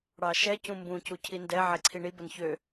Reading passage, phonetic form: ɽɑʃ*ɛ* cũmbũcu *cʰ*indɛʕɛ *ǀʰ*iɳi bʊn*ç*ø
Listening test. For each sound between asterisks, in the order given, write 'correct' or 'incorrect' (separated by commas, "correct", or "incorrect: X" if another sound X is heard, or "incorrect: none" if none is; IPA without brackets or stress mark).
correct, correct, correct, correct